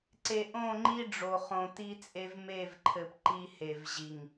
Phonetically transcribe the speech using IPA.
ǀ e˨ ʔ õ˦˨ ŋ͡ǃ i˦ ɖ͡ʐ o˨ χ õ˨ t i˦ t͡sʼ e˦ v m e˦˨ v ǃʰ ɘ˨ p ǃ i˦ h e˨ v ʑ i˨ ŋ

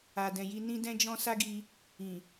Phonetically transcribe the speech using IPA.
a˨ d ɛ̃˨ j i˧ n ĩ˦ d ɛ̃˦ d͡ʒ ɔ̃˦ s a˦ ɡ i˧ | ĩ˨

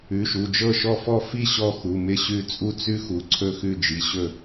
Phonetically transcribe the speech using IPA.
ʉ˩˧˩ ʃ u˩˧˩ d͡ʒ ɤ˥˩ ʃ ɔ˥˩ f ɔ˥˩ f i˥˩ ɕ ɔ˥˩ x u˩˧˩ m ɪ˥˩ ɕ ʉ˥˩ t͡sʼ u˥ t͡s ʉ˥ x u˩˧˩ ǀʰ ɵ˥˩ x ʉ˥˩ d͡ʒ i˩˧˩ ɕ ɵ˥˩

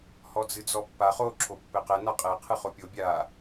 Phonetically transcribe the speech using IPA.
h ɔ d͡z ɨ d͡z ɔ pː a χ o ǁʰ o pː ɘ q ɛ n a qʼ ɛ qʰ ɨ χ o pʲ o bʲ a

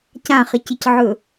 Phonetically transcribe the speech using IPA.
c ã χ ɪ c ɪ c ʕ ɵ

